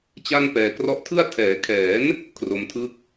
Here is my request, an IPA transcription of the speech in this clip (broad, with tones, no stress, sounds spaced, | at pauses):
t͡ɕ a˥˩ n p ɛː˨˩ k r ɔ˦˥ ʔ tʰ ɯ˥˩ a̯ tʰ ɛː˩˦ kʰ ɛː˩˦ n | kʰ r o˧ m tʰ ɯ˥˩ k̚